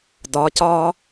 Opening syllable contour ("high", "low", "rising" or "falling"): rising